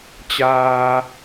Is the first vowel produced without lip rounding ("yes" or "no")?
yes